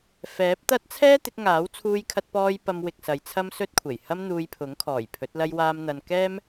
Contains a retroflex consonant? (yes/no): no